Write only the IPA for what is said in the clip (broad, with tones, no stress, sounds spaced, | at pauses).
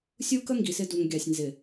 sʲ u˦ k ə˦ ŋ ɡ i˨ s ɪ˦ d u˨ ŋ ɡʲ ɑ˨ sʲ n z ɪ˨